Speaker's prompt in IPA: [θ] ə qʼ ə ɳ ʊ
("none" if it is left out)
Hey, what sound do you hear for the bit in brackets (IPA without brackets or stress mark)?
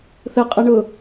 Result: θ